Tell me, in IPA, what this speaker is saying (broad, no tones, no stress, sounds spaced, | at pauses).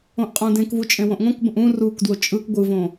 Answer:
õ ʔ qʼ õ d ẽ k v u t͡ʃʼ ẽ w õ ʔ ŋ õ k b ə̃ ʔ ũ r u k d w o t͡ʃʼ ɯ k ɡʷ ɯ v õ